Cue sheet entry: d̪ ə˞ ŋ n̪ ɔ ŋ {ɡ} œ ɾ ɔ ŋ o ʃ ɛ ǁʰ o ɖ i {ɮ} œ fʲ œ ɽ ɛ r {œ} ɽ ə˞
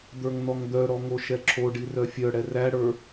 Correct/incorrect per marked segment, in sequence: incorrect, incorrect, incorrect

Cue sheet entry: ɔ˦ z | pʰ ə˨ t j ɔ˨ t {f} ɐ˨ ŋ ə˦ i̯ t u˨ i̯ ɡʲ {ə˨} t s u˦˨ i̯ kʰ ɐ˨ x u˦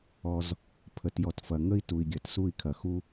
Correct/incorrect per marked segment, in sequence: correct, incorrect

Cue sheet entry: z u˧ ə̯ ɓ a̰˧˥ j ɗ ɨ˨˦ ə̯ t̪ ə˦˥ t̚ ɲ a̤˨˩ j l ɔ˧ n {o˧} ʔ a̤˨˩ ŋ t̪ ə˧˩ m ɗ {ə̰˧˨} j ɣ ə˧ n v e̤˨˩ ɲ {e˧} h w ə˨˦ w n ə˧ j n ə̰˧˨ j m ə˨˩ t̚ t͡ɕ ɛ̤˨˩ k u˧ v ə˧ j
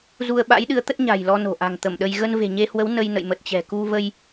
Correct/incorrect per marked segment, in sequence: incorrect, incorrect, correct

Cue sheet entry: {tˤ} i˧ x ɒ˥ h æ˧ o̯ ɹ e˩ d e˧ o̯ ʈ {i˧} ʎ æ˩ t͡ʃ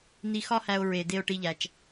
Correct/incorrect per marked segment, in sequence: incorrect, correct

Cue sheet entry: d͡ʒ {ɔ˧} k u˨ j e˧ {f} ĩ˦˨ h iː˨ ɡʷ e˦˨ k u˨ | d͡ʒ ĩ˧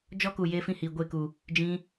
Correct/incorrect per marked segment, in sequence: incorrect, correct

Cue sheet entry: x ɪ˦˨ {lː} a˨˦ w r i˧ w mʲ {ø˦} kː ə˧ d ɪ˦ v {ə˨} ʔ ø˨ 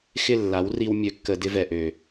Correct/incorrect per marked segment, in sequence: correct, incorrect, incorrect

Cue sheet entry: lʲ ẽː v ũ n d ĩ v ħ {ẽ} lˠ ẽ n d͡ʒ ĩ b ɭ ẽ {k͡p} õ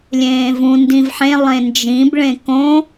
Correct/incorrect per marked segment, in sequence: correct, incorrect

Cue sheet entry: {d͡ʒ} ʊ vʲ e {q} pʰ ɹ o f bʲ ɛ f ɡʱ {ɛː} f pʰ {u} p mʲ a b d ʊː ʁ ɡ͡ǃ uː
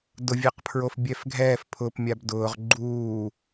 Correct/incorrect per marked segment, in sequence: incorrect, correct, correct, incorrect

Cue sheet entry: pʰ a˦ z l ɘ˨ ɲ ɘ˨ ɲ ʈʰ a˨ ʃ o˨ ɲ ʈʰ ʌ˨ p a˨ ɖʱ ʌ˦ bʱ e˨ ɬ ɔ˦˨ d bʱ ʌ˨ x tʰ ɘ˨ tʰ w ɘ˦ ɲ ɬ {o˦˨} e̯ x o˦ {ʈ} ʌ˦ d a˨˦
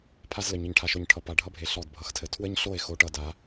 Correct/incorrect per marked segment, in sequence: correct, correct

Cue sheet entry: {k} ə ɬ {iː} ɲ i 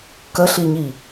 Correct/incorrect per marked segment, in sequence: correct, incorrect

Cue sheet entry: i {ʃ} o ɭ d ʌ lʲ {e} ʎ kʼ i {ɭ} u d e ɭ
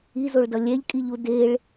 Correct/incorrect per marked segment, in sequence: incorrect, incorrect, incorrect

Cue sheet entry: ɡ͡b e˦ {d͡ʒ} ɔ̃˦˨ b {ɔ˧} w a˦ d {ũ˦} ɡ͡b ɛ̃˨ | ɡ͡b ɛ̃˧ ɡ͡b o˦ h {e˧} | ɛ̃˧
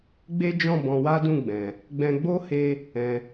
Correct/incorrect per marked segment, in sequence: correct, incorrect, incorrect, correct

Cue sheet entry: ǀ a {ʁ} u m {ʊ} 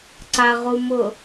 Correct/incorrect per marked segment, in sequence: correct, correct

